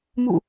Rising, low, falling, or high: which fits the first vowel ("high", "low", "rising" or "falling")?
falling